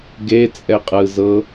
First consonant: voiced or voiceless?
voiced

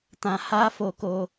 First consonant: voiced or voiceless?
voiceless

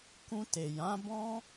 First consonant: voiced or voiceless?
voiceless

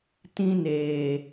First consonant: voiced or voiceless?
voiceless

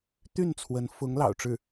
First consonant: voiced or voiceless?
voiceless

